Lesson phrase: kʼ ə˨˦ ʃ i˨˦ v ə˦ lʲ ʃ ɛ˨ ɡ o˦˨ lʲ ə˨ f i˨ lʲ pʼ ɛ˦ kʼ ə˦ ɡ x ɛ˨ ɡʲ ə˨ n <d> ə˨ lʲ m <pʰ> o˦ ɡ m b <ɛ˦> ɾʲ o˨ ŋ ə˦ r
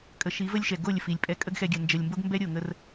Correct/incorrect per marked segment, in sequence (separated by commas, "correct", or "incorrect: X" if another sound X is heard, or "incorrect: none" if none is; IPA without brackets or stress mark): incorrect: d͡ʒ, incorrect: b, correct